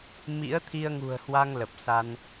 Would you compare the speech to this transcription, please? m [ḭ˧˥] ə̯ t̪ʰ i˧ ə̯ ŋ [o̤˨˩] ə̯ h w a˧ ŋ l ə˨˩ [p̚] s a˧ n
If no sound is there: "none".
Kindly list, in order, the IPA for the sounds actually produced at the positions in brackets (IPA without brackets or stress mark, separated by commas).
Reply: ḭ˧˥, ṳ˨˩, p̚